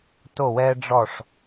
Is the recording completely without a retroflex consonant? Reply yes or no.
no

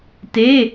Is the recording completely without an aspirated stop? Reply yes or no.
yes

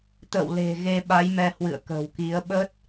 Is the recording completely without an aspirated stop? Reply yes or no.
yes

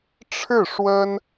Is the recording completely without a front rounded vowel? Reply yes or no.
yes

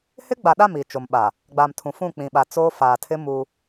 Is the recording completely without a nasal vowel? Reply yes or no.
no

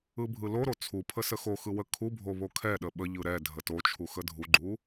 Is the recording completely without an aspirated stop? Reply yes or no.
no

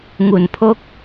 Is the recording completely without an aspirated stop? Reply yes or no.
no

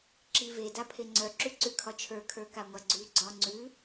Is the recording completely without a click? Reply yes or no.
no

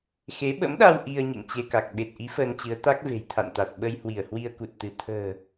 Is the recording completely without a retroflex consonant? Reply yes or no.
yes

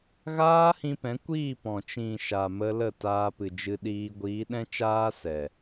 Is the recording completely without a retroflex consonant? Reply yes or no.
yes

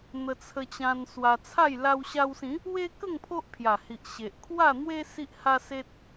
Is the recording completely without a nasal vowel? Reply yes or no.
no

